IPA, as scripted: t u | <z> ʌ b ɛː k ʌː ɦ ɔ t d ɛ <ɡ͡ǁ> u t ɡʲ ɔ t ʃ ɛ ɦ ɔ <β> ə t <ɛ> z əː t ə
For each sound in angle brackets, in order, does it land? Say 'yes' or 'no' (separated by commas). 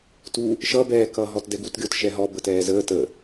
no, no, no, no